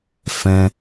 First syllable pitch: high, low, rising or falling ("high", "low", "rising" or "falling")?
high